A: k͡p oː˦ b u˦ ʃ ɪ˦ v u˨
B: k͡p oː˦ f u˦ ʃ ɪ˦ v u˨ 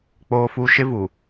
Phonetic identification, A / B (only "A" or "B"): B